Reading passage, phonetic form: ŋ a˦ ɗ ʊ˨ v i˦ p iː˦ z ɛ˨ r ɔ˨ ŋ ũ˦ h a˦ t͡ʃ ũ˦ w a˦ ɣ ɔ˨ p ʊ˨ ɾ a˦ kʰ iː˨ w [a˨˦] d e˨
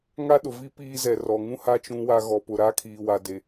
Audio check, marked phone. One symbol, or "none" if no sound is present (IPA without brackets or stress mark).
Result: a˨